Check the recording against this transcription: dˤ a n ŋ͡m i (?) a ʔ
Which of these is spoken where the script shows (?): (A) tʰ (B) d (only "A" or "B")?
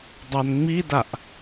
B